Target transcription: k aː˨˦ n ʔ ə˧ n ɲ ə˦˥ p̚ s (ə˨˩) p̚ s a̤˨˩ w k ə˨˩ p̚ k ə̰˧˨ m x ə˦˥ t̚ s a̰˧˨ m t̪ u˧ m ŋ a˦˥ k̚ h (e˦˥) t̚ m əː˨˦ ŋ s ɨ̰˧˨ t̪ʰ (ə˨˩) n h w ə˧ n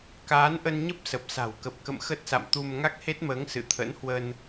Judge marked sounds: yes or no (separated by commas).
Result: yes, yes, no